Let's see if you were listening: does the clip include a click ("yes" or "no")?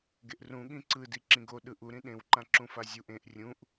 yes